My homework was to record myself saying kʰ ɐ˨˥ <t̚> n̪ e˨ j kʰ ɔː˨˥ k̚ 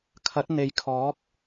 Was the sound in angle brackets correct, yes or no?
yes